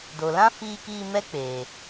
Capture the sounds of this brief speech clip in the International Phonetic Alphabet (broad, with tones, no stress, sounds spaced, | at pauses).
d o˨ l ã˦ f iː˧ k iː˧ m ɛ˦ k͡p eː˨